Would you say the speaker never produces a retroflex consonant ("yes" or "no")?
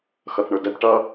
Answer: no